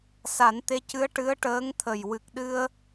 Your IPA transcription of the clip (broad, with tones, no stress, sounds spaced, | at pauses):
s a˨˩˦ n t̪ e˧˥ c ɨ˧˥ ə̯ ʈ ɨ˧˥ ə̯ ʈ əː˧˥ ŋ t̪ʰ ə˨˩ j w ɨ˨˩ k̚ ɗ ɨ˧ ə̯